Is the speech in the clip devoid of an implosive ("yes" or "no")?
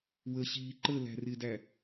yes